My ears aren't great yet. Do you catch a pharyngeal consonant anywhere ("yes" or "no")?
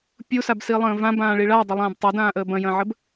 yes